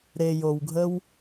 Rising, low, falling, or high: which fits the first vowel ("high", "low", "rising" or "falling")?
low